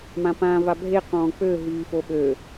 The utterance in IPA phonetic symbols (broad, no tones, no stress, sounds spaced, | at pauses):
m ã p ãː v a bʱ e q ɔ̃ː k͡p ø ɦ yː f o ɓ ø